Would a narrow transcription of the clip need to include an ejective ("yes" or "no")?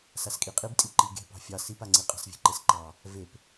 yes